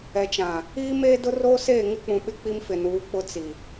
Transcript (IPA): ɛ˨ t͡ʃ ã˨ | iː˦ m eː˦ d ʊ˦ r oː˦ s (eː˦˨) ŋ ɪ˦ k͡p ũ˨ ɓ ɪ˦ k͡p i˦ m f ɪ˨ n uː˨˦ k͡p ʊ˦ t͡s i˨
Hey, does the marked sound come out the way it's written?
yes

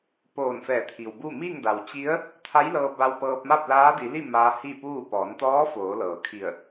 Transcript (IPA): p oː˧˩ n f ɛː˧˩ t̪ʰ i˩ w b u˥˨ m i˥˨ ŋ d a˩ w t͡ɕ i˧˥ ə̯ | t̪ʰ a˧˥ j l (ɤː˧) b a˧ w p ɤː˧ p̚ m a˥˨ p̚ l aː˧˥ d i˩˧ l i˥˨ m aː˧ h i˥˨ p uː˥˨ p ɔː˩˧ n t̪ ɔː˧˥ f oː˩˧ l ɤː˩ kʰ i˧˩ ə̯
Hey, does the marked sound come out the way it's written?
yes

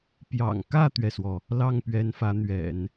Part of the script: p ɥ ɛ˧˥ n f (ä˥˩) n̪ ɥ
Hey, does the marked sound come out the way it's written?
no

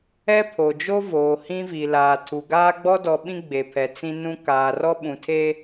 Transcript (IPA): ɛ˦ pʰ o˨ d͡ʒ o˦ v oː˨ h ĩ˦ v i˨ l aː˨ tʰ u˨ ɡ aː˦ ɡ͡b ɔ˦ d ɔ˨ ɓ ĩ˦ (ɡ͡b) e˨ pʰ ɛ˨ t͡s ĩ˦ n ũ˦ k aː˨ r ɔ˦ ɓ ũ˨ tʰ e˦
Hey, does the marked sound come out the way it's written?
yes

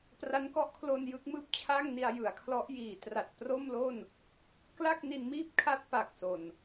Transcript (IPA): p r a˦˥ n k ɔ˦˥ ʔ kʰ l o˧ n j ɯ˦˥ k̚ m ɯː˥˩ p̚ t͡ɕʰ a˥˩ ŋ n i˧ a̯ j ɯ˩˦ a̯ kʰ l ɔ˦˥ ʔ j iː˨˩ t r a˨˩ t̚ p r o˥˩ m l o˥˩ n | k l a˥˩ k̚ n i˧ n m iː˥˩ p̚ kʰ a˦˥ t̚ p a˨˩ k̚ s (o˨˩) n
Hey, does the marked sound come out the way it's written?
yes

